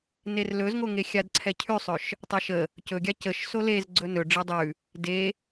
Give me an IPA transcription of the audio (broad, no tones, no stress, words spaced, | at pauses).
nerlɵzŋoŋe xʲadǀʰɛcʰʉsˤɵʃ | tˤaʃə | cɵɡʲa cəʃ solez ɡ͡ǀɵnɵ ɖ͡ʐedˤʉ | de